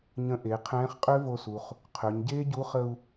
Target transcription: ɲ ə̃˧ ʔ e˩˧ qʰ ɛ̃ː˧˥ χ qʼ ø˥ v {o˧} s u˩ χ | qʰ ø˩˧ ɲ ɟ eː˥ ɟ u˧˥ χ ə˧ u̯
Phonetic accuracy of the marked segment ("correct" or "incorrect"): correct